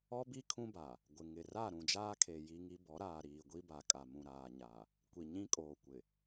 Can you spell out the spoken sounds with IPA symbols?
ɔ˦bi˦ kʰũ˦ba˨ | ɡʷɪ˨ ŋɪ˨ ra˦˨ɾũ˨d͡ʒaː˦kʰe˨ ji˦ŋi˦ bɔ˨˦ɾaː˨ ɾiː˨ɡʷi˦ba˨ kʼa˨mũ˨ɾaː˨ɲa˨ | kʷi˨ɲĩ˦kʼoː˨ kʷɪ˨

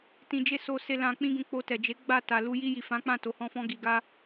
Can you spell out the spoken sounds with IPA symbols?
tĩ˧d͡ʒe˦ so˧se˧ lã˧k͡pĩ˦ɡũ˧ k͡po˧tɛ˨d͡ʒe˨˦ ɡ͡ba˦˨ ta˨ lu˧ji˧ji˨fã˨˦ k͡pã˦˨to˨hɔ̃˧fɔ̃˧ ɡi˨ ɡa˧

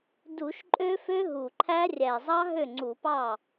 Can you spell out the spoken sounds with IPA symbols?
du˧˩˧ʃǃʼø˦˥fø˦˥ ɦu˨˩ǃʰæ˦˥ rʲæ˨˩zˤɑ˦˥ ɦø˥˩ŋ͡ǀu˧˩˧pɑ˥˩

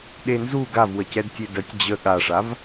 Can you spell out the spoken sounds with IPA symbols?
ɗenzu ɡavwəcɛdtʲe dətʲ d͡ʑə ɠaʂav

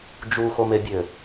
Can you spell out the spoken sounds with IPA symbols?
d͡ʒuxomebʲø

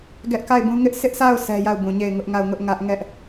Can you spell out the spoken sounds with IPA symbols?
ɡɛ˦ʔka˦˨ɪ̯bũ˦ ŋɪ˦ʔsʰɪ˦ʔsʰa˦˨ʊ̯ sɛ˦ja˦˨ʊ̯ bũ˨ɲe˦˨ɪ̯ŋʊ˦ʔŋa˦˨ʊ̯ ŋʊ˦ʔŋä˦ʔŋɛ˦ʔ

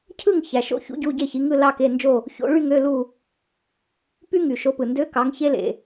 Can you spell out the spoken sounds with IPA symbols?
cʰɯ˥˨ŋ çæ˩ʃo̰˥˨ çṵ˥ɟu˧˥˧ɟe˥˨ çi˨˦ŋɯ˨˦ lɑ˥˨ke˧˥˧nd͡ʒo˥˨ | ço̰˨˦ɭy˥˨ŋø˧˥˧ lu˥˨ | py˥ŋy˩ʃo˨˦pɯ˩ ndø˧˥˧kɑ˨˦ŋ çe˥lḛ˩

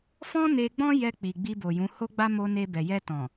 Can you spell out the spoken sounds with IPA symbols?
fɔ̃˦ne˧ɡ͡bɔ̃˦ jɛ˧k͡pi˨ ɡ͡bi˧bo˨jũ˨˦ ho˦ɡ͡ba˦ mo˧ne˧bɛ˨ jɛ˧tɔ̃˨

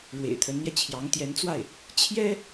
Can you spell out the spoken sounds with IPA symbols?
ɻwḛ˨˩ɪ̯t̪ʰə˧˥nn̪jɛ˧ t͡ɕʰjɑ˧˥ŋt̪jɛ˧˥nt͡swa˥˩ɪ̯ | t͡ɕʰjɛ˥

